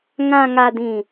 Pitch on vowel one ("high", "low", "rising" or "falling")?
low